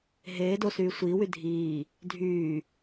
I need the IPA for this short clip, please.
ɦ eː d o s yː sʷ iː w y dʱ iː | dʱ yː

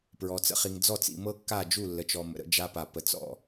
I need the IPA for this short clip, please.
p ɹ ɔ˨ t͡s ə̰˦ χ i˨ ŋ d͡z ɔ˦˨ t͡s ḭ˨ m ɤ˦ kː a˦˨ d͡ʒ u˦˨ lː ə˨ t͡ʃ ɔ˨ m ə̰˨ ɾ ə̰˦ d͡ʒ a˦ p a˨ p ə˨ t͡s ɔ̰˦˨

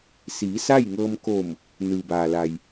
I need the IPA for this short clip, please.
s iː˩˧ s aː˥˨ j ŋ ɤː˧ m k oː˧˩ m | n ɯː˩ b aː˩ l a˩ j

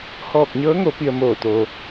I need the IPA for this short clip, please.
h ɔː˧˩ k̚ ɲ ɤː˧˥ ŋ o˩˧ p i˧ ə̯ m oː˧˩ t̪ oː˩

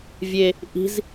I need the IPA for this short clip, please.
vʲ e | ʔ i̤ z

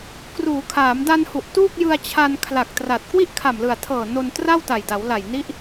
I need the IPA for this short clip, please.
k r uː˩˦ kʰ aː˩˦ m d a˧ n h u˨˩ ʔ t uː˥˩ k̚ j ɯ˧ a̯ t͡ɕʰ a˧ n kʰ l a˨˩ k̚ t r a˨˩ t̚ k w i˥˩ ʔ kʰ a˨˩ m l ɯ˨˩ a̯ tʰ ɤː˨˩ n o˧ n t r a˥˩ w t a˨˩ j d a˩˦ w l a˨˩ j n i˦˥ ʔ

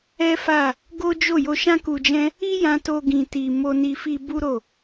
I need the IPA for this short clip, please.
ɛ˦ f a˦˨ | ɡ o˦ d͡ʒ o˦˨ j o˧ ʃ ã˦ k u˧ d͡ʒ ɛ̃˦ | i˦ j ã˧ t o˧ ɡ ĩ˧ t i˧ m o˧ n i˧ f i˧ b u˦ ɾ o˦˨

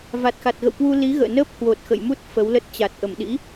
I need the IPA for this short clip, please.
v a˨˩ t̚ x a˨˩ t̚ ɣ ə̰˧˨ w k w u˧ l i˨˦ ɣ ə̰ː˧˨ n əː˦˥ p̚ h w o˨˩ t̚ x ə̰˧˨ j m u˦˥ t̚ f ə˨˦ w l ə˦˥ t̚ t͡ɕ a˨˩ t̚ ʔ ə˧˩ m ɗ ḭ˧˥

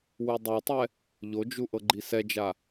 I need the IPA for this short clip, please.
w u dˤ u tˤ ɛ | ʎ o d͡ʒ u ʔ ɤ ɡ͡ǃ i s ɛ d͡ʒ a

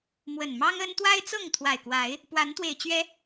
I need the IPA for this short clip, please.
m w ə˨˩ n m ɑ˦ ŋ ə˦ n t̪ w a˦ ɪ̯ t͡s ɤ˥˨ ŋ t̪ʰ w a˨˩ ɪ̯ k w a˨˦ ɪ̯ | p w a˨˦ n t̪ w e˨˩ ɪ̯ t͡ɕ ɥ ɛ˨˦

